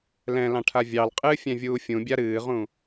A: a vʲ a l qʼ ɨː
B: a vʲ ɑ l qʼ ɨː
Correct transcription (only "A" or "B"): B